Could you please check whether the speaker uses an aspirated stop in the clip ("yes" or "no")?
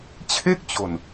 yes